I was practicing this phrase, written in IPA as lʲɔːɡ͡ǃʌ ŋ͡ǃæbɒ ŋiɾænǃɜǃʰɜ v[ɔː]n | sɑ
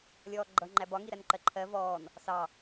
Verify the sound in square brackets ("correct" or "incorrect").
correct